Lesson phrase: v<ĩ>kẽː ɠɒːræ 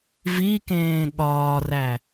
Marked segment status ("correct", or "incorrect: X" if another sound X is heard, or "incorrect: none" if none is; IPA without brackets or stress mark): incorrect: i